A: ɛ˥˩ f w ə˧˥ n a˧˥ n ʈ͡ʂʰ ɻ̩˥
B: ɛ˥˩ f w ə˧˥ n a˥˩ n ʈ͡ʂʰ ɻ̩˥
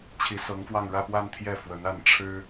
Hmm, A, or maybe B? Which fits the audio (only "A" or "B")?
B